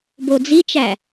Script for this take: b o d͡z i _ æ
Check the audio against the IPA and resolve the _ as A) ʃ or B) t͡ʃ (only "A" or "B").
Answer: B